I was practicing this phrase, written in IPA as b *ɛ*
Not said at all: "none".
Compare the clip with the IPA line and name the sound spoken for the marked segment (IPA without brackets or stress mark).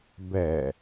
ɛ